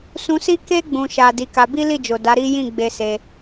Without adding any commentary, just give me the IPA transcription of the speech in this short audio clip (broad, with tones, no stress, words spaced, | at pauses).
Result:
sũ˧si˦ ke˧ɡ͡bũ˨ʃa˨ di˨˦ka˧ bi˦ li˦˨d͡ʒo˨da˨˦ ɾi˦ jĩ˦˨ɡ͡be˧se˧